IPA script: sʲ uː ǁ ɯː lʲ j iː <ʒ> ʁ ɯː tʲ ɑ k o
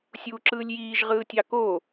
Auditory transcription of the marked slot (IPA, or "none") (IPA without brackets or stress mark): ʒ